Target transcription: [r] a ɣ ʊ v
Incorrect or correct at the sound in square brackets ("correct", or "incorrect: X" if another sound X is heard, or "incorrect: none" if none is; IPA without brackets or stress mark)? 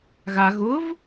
incorrect: ɣ